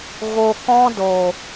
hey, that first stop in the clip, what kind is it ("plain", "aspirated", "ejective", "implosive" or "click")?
plain